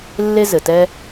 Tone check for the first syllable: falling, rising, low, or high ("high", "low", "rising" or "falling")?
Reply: high